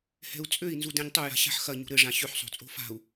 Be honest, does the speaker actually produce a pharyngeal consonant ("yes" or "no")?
yes